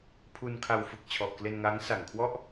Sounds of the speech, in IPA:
pʰ u˧ n kʰ a˧ w f ɯ˨˩ k̚ t͡ɕʰ ɔ˨˩ ʔ k l e˧ n ŋ aː˦˥ ŋ s a˨˩ ŋ kʰ w ɔ˥˩ ʔ

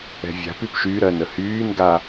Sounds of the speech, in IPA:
ɛ̤ vʲ a̤ p y p ʃ y ɾ ɜ n ə h yː n ɡ a

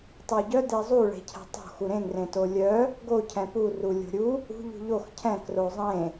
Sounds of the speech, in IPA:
tˤ u ɟ œ d e zˤ u ɭ e̤ cʰ ɛ̤ tˤ o̤ x u ɾ ẽ ŋ r ẽ t o lʲ œ | ɡ o cʰ ɛ̃ p u r u lʲ o̤ ɾʲ u | ṳ ʎ ṳ ʎ o x cʰ ɛ̃ k r o zˤ ẽ

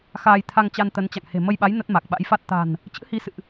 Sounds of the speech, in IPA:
x aː˧ j t̪ʰ a˧ ŋ t͡ɕ a˧ n t̪ ə˨˦ n t͡ɕ a̰˧˨ ŋ h e̤˨˩ m ə˧ j ɓ a˨˦ j n ə˦˥ t̚ m a˨˩ k̚ ɓ a̰˧˥ j f a˦˥ t̚ t̪ a̤˨˩ n | t͡ɕ ɨ̰˧˥ h i˨˦ s ɨ̰˧˨ ʔ

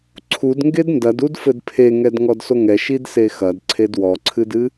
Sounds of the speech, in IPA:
ǀʰ u d ŋ ɡ e d n d ɐ d u d f ɘ d pʰ e ŋ ɛ d ŋ ɔ d s o ŋ ɛ ʃ i d s e x ɐ d ǀʰ e d w ɔ ǀʰ ɨ d ɨ

